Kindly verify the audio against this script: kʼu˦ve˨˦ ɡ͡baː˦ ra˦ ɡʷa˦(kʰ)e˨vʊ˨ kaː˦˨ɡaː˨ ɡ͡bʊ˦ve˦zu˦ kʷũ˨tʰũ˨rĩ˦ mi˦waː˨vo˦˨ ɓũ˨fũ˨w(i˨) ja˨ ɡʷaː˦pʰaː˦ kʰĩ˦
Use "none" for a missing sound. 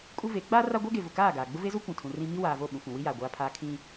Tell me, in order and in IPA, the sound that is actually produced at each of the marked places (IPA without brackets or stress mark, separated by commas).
ɡ, i˦